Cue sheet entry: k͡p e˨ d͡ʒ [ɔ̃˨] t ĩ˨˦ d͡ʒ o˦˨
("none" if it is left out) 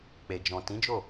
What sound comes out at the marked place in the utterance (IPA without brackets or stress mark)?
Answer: ɔ̃˨